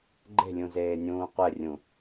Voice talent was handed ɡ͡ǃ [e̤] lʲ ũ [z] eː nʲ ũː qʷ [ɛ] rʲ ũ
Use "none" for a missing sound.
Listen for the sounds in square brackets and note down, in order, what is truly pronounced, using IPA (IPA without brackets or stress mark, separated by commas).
e̤, z, ɛ